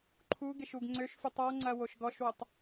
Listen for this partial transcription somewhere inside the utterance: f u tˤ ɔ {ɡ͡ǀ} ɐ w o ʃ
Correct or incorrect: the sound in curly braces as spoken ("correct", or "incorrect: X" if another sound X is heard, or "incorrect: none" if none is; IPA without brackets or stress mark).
incorrect: ŋ͡ǀ